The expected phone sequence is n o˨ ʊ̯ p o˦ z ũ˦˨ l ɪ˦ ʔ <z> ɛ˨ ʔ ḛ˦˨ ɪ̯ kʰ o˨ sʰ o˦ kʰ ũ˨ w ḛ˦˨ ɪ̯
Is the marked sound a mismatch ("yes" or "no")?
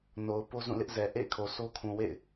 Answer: no